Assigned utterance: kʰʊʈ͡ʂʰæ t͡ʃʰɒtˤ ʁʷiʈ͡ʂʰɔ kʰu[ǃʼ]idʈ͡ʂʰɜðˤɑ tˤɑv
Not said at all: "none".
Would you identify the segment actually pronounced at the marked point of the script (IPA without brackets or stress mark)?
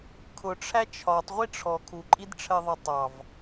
ǃʼ